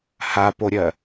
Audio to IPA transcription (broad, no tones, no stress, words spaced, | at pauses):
hapoɾʲɜ